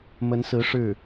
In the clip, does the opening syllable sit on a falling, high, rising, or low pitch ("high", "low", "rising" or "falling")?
rising